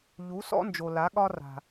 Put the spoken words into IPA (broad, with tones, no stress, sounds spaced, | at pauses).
ʎ u˨˦ s ɔ̰˦ n d͡ʒ o˨ l a˨˦ ɠ ɒ˦ r a̤˨